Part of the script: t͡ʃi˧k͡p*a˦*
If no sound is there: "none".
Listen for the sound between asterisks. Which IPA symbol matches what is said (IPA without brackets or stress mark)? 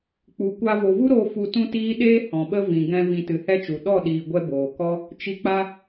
a˦